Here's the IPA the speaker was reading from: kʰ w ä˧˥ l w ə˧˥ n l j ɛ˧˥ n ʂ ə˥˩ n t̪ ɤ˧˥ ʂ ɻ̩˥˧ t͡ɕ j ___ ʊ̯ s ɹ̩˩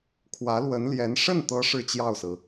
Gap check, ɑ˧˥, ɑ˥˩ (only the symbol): ɑ˥˩